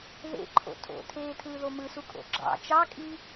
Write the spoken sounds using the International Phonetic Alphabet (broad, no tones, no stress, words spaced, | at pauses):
ðḛ ǃʰo̰tʰo̰tʰeːtʰɯː ðomɯsu kʼo̰ɡ͡ǁɑ̰ t͡ʃɑkʼi